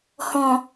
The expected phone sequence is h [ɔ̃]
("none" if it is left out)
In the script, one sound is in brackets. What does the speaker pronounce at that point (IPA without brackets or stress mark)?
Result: ɔ̃